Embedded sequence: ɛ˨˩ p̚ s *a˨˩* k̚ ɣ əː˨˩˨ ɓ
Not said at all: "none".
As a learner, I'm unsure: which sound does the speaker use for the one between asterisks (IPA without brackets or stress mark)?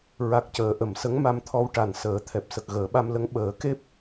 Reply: ə˨˩